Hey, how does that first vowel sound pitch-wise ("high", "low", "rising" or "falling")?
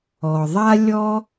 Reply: low